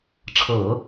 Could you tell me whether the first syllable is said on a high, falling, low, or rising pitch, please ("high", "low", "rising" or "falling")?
low